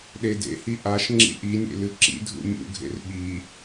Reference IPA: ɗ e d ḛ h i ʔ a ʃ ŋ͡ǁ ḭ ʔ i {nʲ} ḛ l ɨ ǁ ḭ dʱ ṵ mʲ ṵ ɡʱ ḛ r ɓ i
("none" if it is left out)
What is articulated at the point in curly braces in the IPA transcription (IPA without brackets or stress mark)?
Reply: nʲ